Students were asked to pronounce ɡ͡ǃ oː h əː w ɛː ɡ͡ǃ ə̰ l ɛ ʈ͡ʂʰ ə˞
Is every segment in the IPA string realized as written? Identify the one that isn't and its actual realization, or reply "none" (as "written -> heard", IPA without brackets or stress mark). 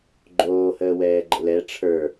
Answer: none